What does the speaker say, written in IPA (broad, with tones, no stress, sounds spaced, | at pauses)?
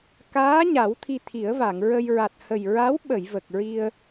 k aː˧˥ ɲ a˨˩˦ w t̪ʰ i˧ t̪ʰ i˨˩˦ ə̯ v a˨˩˨ ŋ ɹ ə˧ j ɹ a˨˩ t̚ h ə˨˩ j ɹ a˧˥ w ɓ ə˨˩˨ j v ə˨˩ k̚ ɹ i˧ ə̯